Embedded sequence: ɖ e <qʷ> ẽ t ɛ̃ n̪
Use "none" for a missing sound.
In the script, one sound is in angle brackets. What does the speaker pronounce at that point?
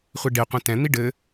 qʷ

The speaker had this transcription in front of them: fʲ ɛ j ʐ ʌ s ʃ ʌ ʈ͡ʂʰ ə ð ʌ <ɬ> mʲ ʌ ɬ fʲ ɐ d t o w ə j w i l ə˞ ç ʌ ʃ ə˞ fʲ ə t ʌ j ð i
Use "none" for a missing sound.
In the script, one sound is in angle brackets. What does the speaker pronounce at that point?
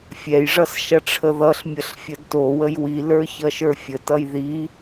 ɬ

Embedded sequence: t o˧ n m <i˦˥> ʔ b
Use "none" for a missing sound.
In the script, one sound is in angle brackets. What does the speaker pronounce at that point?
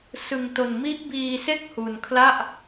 i˦˥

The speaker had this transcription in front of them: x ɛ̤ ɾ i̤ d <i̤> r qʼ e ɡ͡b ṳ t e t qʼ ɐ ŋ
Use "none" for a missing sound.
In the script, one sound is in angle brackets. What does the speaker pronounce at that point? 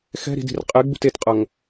i̤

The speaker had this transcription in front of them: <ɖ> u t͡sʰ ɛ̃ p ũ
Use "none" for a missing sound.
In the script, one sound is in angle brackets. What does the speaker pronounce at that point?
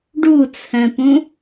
ɖ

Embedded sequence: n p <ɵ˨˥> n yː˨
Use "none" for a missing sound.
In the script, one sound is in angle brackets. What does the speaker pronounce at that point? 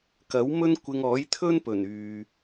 ɵ˨˩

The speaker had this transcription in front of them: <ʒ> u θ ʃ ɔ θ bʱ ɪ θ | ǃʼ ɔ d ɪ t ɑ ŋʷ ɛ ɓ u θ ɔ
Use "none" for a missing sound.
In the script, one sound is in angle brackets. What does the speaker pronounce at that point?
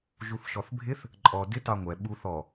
ʒ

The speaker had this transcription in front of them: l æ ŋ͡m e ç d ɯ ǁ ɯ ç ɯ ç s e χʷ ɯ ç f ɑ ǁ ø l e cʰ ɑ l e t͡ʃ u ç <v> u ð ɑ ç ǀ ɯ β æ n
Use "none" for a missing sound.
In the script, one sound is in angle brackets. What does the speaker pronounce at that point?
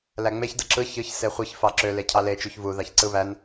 v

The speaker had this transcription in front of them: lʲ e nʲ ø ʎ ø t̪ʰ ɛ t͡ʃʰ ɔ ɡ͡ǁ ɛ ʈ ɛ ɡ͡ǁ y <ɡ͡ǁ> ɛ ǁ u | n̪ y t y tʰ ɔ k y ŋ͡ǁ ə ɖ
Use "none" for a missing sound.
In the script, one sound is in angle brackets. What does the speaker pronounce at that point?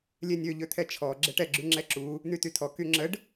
ŋ͡ǁ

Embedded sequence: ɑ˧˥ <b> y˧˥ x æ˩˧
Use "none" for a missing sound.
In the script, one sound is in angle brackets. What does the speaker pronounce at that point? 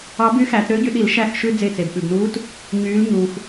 b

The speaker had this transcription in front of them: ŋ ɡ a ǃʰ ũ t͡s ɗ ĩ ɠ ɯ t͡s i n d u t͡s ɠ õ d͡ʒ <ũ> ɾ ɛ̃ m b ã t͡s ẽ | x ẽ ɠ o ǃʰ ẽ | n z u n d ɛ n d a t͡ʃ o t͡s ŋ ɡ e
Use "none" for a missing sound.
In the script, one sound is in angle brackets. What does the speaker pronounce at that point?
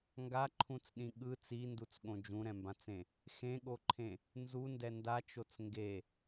ũ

